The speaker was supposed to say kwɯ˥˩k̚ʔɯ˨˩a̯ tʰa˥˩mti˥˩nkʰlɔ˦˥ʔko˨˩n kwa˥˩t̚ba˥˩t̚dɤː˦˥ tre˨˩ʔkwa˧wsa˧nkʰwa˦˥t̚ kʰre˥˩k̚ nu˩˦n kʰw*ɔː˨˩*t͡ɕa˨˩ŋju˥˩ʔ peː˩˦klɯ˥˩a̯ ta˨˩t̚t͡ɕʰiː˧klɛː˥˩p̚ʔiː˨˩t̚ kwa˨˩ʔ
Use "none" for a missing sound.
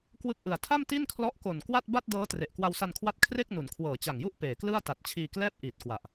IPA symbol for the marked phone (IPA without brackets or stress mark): ɤː˨˩